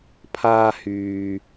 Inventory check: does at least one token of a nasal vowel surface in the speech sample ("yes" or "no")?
no